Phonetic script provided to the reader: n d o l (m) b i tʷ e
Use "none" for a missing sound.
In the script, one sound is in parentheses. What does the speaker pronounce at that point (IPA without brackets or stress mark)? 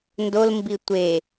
m